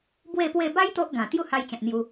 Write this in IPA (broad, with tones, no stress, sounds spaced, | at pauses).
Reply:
b w e˥˧ p w e˥˧ b a˦ j t̪ o˦ ʔ ɡ ã˨˩ t̪ j u˥˧ h a˧ j t͡ɕ ã˨ t̚ n̪ j u˧